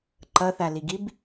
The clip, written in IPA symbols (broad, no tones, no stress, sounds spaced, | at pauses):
ǃ ʌ θ a l i ɡ i b